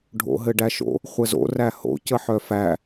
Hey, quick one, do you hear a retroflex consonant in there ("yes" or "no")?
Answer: yes